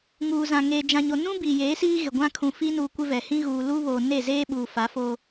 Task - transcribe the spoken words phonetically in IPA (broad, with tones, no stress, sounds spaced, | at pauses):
ŋ uː˨ z ã˨ ŋ eː˨ d͡ʒ ã˨ ɲ o˨ n ũ˦ b iː˨ j eː˨˦ s iː˦ ɣ ɪ˨ ɡʷ ã˦ kʰ ũ˨ f i˦ n uː˨ kʷ ɪ˦ v ɛ˨ h ĩ˦ ɣ uː˨ l u˦ β oː˨ n e˦˨ z eː˦ ɓ uː˨ f a˨˦ f o˦